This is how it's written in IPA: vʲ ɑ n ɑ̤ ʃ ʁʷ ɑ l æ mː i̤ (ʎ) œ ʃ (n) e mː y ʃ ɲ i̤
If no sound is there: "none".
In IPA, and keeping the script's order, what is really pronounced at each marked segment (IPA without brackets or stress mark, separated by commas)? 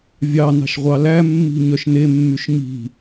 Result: ɲ, n